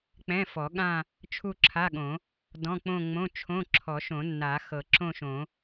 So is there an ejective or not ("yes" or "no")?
no